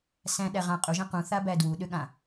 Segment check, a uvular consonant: present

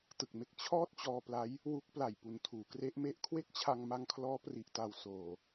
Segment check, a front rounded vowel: absent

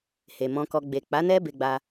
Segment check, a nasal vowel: present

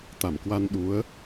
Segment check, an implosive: present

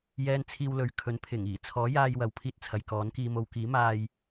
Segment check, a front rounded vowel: absent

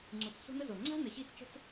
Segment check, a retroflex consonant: absent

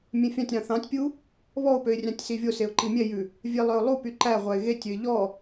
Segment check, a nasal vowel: present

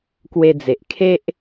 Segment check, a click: absent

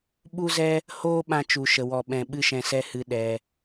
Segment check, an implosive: present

